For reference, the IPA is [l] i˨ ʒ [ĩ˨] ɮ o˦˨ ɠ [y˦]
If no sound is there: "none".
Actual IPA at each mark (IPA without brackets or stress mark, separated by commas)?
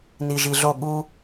n, i˨, u˦